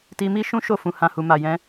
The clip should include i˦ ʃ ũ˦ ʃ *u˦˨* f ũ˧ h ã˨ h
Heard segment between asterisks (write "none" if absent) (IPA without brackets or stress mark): o˦˨